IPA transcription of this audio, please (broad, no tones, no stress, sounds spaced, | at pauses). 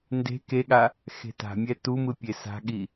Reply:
n d e̤ k e ɠ a | x e̤ t a̤ mʲ ɛ t u m ɯ pʲ e s a̤ ɠ i